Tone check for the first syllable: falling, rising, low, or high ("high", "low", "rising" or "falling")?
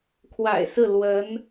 low